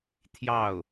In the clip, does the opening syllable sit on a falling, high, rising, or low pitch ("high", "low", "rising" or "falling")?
falling